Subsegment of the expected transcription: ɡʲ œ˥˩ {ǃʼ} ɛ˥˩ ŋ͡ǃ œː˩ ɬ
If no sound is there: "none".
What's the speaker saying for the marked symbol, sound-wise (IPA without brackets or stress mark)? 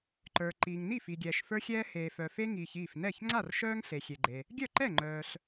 ǃ